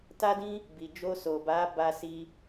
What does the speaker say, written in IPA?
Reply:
ta˦dĩ˦ | bi˨d͡ʒo˧so˨ba˨˦ ba˦si˦

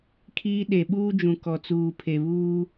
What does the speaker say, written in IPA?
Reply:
kʰiː˦ ɗe˨ɓuː˦d͡ʒũ˨ kɔ˨t͡suː˨ pʰe˨βuː˦

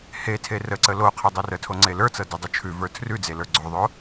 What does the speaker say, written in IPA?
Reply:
he tʰerəǀə lo qʰodˤerətʰo ŋ͡ǀelə˞t͡sɤ dɪdˤɤ t͡ʃʰʉvə˞ tʰrʉd͡ze lə˞ɡ͡ǀoðˤo

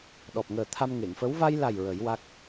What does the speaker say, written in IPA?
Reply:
ɗɔ˨˩p̚ŋəː˨˩ t̪ʰa˧mŋe˨˩˨ŋfə˧˥w va˧jla˨˩j ɹə˨˩˦jwa˦˥k̚

